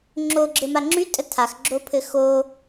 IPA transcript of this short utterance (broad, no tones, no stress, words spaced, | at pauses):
ŋ͡ǁoɡ͡ǁɘma ŋ͡ǁytʼə tʰaxɡ͡ǁopʰɘ xo